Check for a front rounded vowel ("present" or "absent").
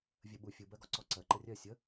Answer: absent